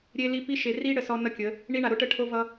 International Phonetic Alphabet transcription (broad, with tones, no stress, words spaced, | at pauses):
ɾʲe˦li˦ pi˦ʃe˨ ri˦ ɽə˨sɔ˦nʌ˦kʲə˨˦ | ɳi˦ɳa˨ɾo˦ʈə˦ ʈʰo˦vʌ˦